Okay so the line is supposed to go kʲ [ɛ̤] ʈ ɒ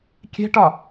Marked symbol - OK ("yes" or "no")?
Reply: yes